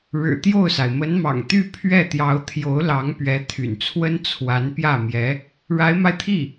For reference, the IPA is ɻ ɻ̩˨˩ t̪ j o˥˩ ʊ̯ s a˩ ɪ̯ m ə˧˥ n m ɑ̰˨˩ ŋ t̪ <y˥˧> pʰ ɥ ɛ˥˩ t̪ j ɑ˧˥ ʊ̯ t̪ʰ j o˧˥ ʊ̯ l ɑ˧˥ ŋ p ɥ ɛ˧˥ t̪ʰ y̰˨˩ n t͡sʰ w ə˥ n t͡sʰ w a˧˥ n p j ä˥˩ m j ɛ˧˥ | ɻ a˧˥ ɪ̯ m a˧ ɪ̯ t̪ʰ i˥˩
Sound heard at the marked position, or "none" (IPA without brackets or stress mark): y˥˧